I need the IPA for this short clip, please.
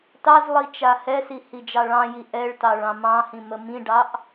t ɑ z lˠ i t͡ʃ a h ɛ s i h i d͡ʒ ɑ ɭ ɑ̃ j i ʔ ɛ ɭ t ɑ ɭ ɑ̃ m ɑ̃ h ĩ m ə m ĩ ɖ ɑ ʔ

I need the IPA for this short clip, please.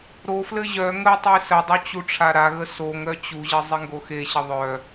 ɾ o f l ɘ ʑ œ ŋ ə tˤ i s ə dˤ o t͡ɕ u ʈ͡ʂʰ a ɾ a ɣ ə s o ŋ ɾ œ t͡ɕ u ʑ ɘ zˤ i ŋ ɡ o x e ɕ ə ðˤ œ

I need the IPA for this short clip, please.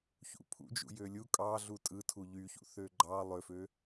ç ṵ pʰ ṵ d͡ʒ ṵ j ø lʲ u kʼ ɑ ɮ u tʼ ɯ tʰ u ʎ y ç ṵ θ ø ɡ͡ǃ ɑ lˠ ø f ø

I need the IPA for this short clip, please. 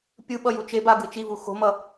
pʲ ɯ ɓ ʌ j u t͡ʃ e b a ɡ ɯ t͡ʃ i v u x o̤ m ʌ

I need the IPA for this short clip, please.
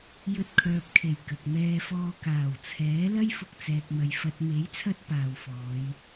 j ɵ˧ t̚ kʰ œː˨ p̚ kʰ e˨˩ j k ɐ˨ k̚ m ɛː˧ f ɔː˧ k aː˨˩ w t͡sʰ ɛː˨˥ l ɐ˥ j f ʊ˧ k̚ t͡s ɛː˨ k̚ m ɐ˨ j f ɐ˨ t̚ m e˨˥ j t͡sʰ ɐ˧ t̚ p aː˨ w f ɔː˨˧ j

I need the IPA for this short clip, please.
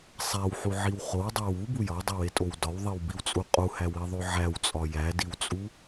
sˤ æ w ħ u ʕ i w χ o w dˤ æ w u b u j ɒ dˤ i w e tʼ o w d ɒ w ðˤ i w b i w t͡sʼ u qʼ u h æ w i ðˤ o ʕ æ w t͡sʼ ɒ j æ d i w t͡sʼ u

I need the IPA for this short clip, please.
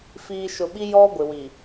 f iː˨ ʃ ʊ˨ ɓ i˦ j ɔ˦ ɡʷ ɪ˨ w i˨

